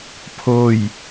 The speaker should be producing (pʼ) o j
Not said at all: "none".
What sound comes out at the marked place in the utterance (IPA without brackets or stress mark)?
pʰ